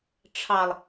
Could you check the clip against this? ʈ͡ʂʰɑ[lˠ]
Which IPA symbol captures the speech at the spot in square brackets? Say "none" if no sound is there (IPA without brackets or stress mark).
lˠ